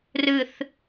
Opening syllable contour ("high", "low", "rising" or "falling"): low